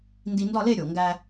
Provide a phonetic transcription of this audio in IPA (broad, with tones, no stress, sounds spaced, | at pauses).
n d i˧ n d ɒ˥˧ l e˥˧ ɾʲ o˨˩ ŋ ɡ æ˧